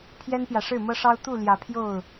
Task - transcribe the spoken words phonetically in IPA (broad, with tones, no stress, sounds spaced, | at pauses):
pʰ j ɛ˦ n p j ä˨ ʂ ɻ̩˥˨ m ɤ˦ ʂ ɑ˦ ʊ̯ t̪ u˥˨ l j ä˨˦ pʰ j o˥˨ ʊ̯